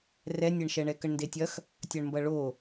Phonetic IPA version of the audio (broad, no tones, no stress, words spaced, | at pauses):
rɛnʲɛɳʃɛɳɛ kəɳndetʲɐx | tʲɐɳmbɐɭo